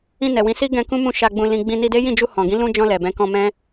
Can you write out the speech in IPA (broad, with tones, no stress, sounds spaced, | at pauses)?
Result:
ĩ˧ n ɛ˨ w ĩ˨˦ s i˦ ɡ ɛ̃˧ k ũ˦ m ũ˧ ʃ a˧ ɡ͡b ũ˧ l ĩ˧ ɡ͡b ĩ˧ n i˧ d e˦ j ĩ˦˨ d͡ʒ u˧ h ɔ̃˨ ɡ ĩ˨˦ l ũ˧ d͡ʒ ɔ̃˧ l ɛ˨ b ɛ̃˨˦ k ɔ̃˧ m ɛ̃˦